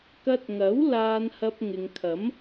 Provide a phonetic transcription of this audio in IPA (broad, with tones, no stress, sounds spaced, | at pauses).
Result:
k ɐ˧ t̚ ŋ ɐ˨˥ w l aː˧ n h ɐ˧ p̚ ŋ ɪ˨ ŋ kʰ ɐ˨˥ m